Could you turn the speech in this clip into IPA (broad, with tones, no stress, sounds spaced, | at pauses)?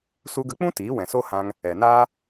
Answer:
s u˧ ɡ ə˧ k͡p ũ˦ t iː˨˦ w ɛ̃˨ s o˦ h ã˧ ŋ | ɛ˨ n aː˦